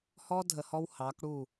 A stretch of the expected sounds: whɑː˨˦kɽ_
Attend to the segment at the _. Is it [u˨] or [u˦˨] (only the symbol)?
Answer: u˦˨